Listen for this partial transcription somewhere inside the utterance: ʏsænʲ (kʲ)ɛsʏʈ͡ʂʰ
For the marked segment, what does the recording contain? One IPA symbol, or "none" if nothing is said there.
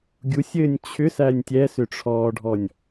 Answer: tʲ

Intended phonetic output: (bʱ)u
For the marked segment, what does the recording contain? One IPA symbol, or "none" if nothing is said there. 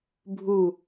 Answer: bʱ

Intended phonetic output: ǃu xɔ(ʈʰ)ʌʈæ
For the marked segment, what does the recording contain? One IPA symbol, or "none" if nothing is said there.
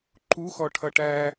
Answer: ʈʰ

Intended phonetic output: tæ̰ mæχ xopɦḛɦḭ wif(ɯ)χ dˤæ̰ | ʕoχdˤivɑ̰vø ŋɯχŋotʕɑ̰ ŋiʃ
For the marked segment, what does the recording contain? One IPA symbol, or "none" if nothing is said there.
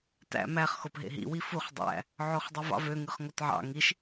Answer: u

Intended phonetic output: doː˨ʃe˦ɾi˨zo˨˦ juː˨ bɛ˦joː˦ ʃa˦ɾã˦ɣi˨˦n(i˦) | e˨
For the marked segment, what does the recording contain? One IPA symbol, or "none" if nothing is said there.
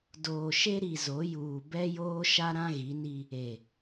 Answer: i˦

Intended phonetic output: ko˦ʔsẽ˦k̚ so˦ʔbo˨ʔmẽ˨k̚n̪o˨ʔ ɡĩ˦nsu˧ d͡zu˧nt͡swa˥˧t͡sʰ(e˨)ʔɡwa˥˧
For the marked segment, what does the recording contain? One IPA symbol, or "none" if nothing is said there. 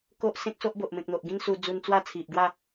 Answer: i˨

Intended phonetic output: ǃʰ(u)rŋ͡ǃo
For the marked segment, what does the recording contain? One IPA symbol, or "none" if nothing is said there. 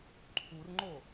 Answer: u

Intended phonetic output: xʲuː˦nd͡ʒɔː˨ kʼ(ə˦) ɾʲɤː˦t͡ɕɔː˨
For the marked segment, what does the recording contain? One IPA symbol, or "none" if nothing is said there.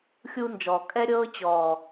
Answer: ɛ˦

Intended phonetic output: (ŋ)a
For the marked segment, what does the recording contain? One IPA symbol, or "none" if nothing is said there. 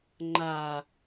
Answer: ŋ͡ǃ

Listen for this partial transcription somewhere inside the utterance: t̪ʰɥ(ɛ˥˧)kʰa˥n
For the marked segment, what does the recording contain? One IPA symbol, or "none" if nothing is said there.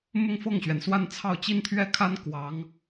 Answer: ɛ˥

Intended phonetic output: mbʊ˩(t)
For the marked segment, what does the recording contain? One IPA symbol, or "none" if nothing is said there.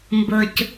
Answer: c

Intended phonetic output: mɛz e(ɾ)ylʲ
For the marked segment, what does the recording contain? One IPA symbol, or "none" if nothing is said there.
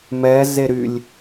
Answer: ɾ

